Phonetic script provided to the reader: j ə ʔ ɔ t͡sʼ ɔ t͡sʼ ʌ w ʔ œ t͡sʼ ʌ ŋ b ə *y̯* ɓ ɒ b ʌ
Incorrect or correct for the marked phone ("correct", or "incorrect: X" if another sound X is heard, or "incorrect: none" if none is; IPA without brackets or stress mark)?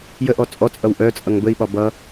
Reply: incorrect: i̯